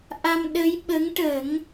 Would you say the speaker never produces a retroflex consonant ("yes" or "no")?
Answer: no